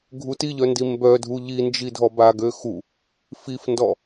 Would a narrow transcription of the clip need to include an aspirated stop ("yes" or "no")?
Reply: no